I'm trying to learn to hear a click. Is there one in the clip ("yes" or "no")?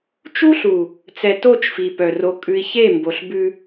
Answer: no